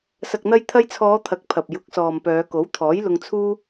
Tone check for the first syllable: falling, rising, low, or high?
low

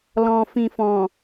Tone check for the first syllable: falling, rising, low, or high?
low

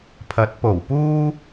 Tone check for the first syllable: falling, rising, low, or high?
rising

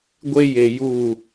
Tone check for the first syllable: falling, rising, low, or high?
high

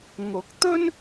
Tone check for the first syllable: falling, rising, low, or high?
rising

